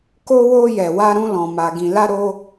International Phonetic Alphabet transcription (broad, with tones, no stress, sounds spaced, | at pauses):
k o˧ w o˧ j ɛ˨ w a˧ ɾ ũ˧ l ɔ̃˨ m a˨ ɡ ĩ˨ l a˧ ɾ o˧